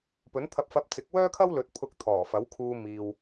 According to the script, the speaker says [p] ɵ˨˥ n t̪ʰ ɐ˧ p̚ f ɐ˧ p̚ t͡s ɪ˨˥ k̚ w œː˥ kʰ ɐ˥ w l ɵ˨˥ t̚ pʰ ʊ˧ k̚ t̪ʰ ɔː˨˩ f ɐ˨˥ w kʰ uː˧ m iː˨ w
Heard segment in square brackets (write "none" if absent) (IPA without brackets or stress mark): p